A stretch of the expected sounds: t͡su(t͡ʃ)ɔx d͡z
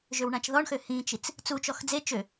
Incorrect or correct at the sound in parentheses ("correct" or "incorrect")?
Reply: correct